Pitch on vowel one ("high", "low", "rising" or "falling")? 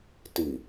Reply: low